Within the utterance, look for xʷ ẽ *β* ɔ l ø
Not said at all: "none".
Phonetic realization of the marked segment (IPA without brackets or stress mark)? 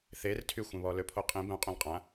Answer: β